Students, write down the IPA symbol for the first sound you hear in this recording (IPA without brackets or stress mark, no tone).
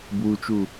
b